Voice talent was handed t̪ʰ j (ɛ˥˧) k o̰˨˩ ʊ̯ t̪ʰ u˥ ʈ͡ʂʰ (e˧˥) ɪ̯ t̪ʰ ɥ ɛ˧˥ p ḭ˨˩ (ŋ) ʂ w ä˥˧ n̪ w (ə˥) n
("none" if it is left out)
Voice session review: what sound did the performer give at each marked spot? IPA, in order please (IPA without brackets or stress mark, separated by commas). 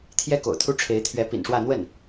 ɛ˥, e˧˥, n, ə˥˩